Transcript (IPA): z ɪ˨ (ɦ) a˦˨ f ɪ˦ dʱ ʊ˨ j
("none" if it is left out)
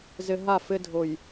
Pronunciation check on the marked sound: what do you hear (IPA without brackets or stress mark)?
ɦ